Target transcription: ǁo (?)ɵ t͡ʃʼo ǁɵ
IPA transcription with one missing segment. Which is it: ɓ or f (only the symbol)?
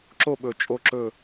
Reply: ɓ